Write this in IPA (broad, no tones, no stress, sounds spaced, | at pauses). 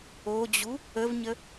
o d͡ʑ u | ə v ɲ ə